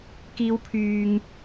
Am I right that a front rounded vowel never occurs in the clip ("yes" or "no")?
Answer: no